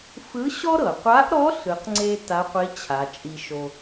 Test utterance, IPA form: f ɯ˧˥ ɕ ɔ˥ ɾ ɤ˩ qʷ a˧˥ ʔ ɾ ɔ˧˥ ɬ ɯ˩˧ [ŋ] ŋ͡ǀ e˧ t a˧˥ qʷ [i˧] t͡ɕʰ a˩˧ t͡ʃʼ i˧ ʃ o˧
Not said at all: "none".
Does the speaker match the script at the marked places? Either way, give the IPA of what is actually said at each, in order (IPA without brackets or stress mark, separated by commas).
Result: q, i˧˥